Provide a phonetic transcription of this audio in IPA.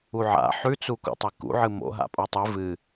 u ʕ a̰ ħ ʉ t͡s u k ṵ tˤ e k ṵ ʕ ɨ m o̰ ɦ a̰ pʼ o tˤ ɨ v ɨ

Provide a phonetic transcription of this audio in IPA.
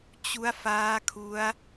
t͡ɕ u˦˥ a̯ f aː˦˥ kʰ u˦˥ a̯

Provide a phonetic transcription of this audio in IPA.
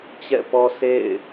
t͡ɕ ɛ̰˦˨ p ɔ˦ s ḛ˦˨ ɪ̯

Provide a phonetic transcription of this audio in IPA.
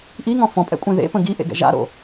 ʔ i ŋ ɔ̃ f ɔ̃ pʼ ɛ̰ kʷʼ ẽ ð ḛ p ə̃ ɡ i ʔ ḛ ɡ ɛ̰ ʒ a̰ ɾ o̰

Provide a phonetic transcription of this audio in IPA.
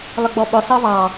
lˠ ə ɡ͡b ɔ ɓ ʊ sˤ ʌ v ɑ

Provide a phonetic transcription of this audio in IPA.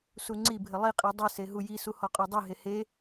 s u ŋ͡ǀ i bʱ ɘ lˠ i qʼ i dˤ i s e ɦ u j i s u h ɔ qʼ ɔ dˤ i ɦ e h e

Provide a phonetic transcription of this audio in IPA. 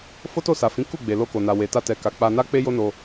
f o˦ t o˦˨ s a˨ f ĩ˨˦ k u˦˨ ɡ͡b e˨ l o˧ k o˨ n a˨ w e˨ t a˧ t ɛ˨ k a˨ k͡p a˧ n a˦ k͡p e˦ j o˦ n o˧

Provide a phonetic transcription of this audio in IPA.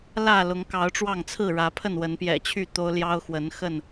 l ä˥˨ l ʊ˨˦ ŋ k ɑ˨˦ ʊ̯ ʈ͡ʂ w ɑ˥˨ ŋ t͡sʰ ɹ̩˥˨ ɻ ä˨˦ pʰ ə˥˨ n w ə˨˦ n p j ɛ̰˨˩ t͡ɕʰ y˥˨ t̪ o˦ ʊ̯ l j ɑ˦ ʊ̯ x w ə˨˦ n x ə˥˨ n

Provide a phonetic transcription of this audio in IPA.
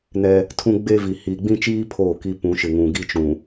n ɛ˦ | tʰ ũ˦ ɡ͡b e˦ v i˨ h iː˨ ɡ͡b ĩ˦ t͡ʃ iː˦ pʰ oː˦˨ k i˦ p ũ˨˦ ʃ ɪ˨ ŋ ũ˨ ɡ i˦ t͡ʃ ũ˨

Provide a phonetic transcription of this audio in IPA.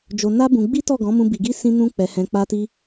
d͡ʒ o˧ n a˦ b ũ˧ ɡ͡b i˦ t ɔ˦˨ ɡ ɔ̃˨˦ m ũ˧ b i˧ ɡ i˦ s ĩ˦ n ũ˦ k͡p ɛ˧ h ɛ̃˧ k͡p a˦ t i˦

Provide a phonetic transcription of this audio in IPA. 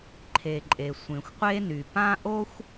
ǃʰ e˩ ǃʼ e˩ sʷ ẽ˩ xʷ qʷ e˥ n y˩ p ã˥ ʔ o˥ xʷ

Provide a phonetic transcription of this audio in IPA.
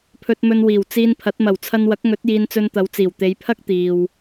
pʰ ɵ˧ t̚ m ɵ˧ n w iː˨˩ w t͡s iː˧ n pʰ ɐ˨˥ t̚ m ɐ˨˩ w t͡sʰ ɐ˧ n w ɐ˨˥ k̚ ŋ ɵ˨˥ t̚ j iː˧ n t͡s ɵ˧ n t̪ ɐ˨˧ w t͡s iː˨˩ w t̪ e˨˧ j pʰ ɐ˥ k̚ t̪ iː˨ w

